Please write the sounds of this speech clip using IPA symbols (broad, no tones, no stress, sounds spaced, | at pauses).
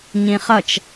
ɲ ĩ χ ʌ t͡ʃ